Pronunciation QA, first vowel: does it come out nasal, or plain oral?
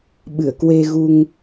oral